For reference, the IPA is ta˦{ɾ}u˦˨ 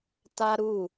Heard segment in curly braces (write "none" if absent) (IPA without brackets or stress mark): ɾ